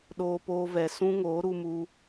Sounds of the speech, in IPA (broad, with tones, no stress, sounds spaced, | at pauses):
ɗ oː˧ p oː˧ v ɛ˨ s ũ˦ ŋ oː˨˦ ɾ u˧ m u˧